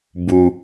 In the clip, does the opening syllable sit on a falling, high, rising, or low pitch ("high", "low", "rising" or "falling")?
low